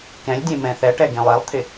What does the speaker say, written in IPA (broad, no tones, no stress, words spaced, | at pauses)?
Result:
kɛ̃lʲdʲẽ mɛ̃θɛʈɛ ɡẽlˠɛlˠt̪ʰɪ